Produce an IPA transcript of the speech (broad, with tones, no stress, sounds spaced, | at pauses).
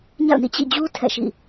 ɲ a̰˦˨ ʊ̯ n ḭ˦˨ t͡ɕ ḭ˦˨ d͡ʑ u˦ tʰ ɛ̰˦˨ ʃ ḭ˦˨